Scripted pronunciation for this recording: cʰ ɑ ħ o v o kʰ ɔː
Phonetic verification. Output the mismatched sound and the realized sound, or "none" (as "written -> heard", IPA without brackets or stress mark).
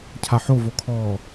ɑ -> a